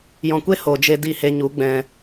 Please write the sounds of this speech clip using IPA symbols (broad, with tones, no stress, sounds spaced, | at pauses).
j ɔ̃˨ kʷ e˦ h o˨ d͡ʒ e˧ d i˦˨ h e˧ ɲ u˨˦ ɡ͡b ɛ̃˨